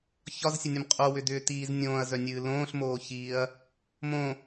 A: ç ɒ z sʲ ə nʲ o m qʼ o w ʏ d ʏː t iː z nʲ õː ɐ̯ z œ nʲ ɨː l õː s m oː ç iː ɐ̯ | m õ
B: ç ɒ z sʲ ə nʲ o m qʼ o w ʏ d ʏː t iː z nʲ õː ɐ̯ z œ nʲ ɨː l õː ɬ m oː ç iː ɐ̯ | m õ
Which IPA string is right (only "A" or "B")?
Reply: B